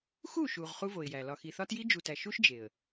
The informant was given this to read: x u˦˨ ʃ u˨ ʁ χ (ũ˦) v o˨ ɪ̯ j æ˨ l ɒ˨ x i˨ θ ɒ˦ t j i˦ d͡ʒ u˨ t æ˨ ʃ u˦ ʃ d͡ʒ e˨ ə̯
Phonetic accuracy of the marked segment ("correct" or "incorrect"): incorrect